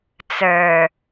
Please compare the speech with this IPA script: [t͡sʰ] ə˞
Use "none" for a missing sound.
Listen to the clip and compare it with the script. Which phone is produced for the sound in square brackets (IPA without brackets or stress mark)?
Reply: t͡s